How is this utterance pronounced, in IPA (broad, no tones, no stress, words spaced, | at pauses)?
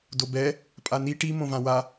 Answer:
dobɛ | pʼani ʈi mõvãwa